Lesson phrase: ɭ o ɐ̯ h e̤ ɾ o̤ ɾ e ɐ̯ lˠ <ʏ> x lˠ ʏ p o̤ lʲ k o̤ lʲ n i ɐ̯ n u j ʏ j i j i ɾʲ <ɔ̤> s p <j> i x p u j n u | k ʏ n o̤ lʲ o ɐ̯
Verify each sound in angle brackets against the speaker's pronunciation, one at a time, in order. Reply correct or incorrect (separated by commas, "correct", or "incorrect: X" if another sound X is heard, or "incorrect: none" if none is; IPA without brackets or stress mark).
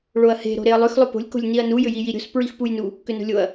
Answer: correct, incorrect: o̤, incorrect: ɹ